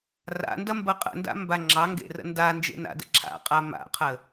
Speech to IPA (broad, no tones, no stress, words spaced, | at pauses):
ra̰ndɐmbɐ qʼə̰nda̰mba ŋ͡ǁɑŋɡḛrə̰ ndand͡ʒḛna̰də̰ ǁʰa̰qʼa ma̰qʰə